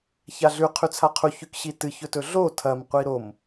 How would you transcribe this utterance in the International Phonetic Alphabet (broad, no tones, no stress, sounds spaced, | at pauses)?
ç a ɮ ʉ qʰ ʉ t͡sʰ a qʰ u ç ʉ k ɕ i t ɨ ç ɵ t ɵ ɮ o tʰ ɐ m qʷ i ɾ o m